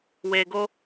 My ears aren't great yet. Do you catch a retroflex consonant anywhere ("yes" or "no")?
no